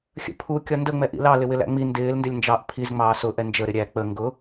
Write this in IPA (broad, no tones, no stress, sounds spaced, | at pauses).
xʲ ə̰ pʰ u kʲ ɒ n d ə ŋ͡m ɛ ʔ ḭ l ɑ l ɪ w ɪ l æ̰ ŋ͡m i n d ɪː l n d ɪ lʲ n d͡ʒ ɑ ʔ pʰ i z ŋ͡m ɑː s ʊ ʔ ɛ n d͡ʒ ə ɾ ɪ ɾʲ æ k͡p ə ŋ ɡ ʊ